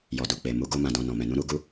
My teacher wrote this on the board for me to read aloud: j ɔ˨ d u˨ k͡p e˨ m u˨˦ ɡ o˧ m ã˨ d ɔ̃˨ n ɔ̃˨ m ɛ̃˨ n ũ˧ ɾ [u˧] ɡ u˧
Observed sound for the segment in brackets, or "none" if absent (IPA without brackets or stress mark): u˧